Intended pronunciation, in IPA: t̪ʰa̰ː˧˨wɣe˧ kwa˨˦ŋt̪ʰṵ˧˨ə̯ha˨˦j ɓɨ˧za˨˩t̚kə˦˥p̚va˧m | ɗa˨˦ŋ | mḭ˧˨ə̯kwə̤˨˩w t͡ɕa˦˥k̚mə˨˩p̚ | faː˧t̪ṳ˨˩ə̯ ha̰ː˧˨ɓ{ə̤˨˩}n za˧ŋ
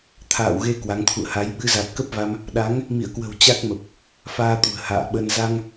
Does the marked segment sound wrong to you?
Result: yes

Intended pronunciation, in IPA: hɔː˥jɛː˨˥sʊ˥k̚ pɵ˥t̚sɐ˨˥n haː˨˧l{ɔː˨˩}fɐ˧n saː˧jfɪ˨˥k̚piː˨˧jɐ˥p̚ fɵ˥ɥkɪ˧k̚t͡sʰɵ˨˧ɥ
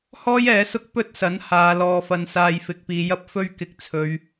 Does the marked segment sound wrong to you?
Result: yes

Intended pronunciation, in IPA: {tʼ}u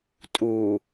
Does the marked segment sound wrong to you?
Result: no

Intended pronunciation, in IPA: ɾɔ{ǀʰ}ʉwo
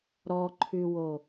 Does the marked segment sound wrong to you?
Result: yes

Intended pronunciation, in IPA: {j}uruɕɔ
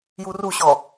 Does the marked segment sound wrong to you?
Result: no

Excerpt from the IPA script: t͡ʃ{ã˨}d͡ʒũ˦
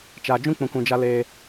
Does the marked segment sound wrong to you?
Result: yes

